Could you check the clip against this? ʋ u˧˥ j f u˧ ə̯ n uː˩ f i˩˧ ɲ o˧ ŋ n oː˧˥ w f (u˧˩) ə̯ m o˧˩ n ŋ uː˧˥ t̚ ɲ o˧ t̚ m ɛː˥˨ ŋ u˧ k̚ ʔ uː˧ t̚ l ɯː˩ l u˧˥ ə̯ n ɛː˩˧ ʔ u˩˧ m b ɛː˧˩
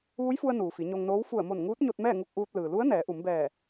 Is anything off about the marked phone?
no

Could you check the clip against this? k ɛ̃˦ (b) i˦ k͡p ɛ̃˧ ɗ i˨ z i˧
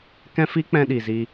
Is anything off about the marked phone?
yes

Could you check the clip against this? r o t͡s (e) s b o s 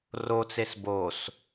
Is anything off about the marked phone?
no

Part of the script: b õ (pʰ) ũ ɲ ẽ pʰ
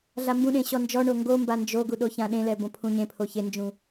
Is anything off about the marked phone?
no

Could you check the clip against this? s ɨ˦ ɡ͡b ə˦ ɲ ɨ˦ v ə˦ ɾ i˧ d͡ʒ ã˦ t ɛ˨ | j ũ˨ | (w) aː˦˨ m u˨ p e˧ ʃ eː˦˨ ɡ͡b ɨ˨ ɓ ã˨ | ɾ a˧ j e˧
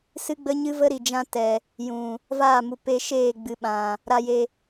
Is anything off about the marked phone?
yes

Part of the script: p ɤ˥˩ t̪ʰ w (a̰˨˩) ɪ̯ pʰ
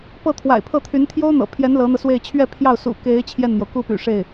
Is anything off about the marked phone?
no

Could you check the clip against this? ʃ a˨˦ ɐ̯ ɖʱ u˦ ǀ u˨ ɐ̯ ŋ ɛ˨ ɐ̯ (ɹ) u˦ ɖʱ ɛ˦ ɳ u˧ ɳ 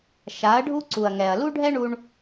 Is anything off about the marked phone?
yes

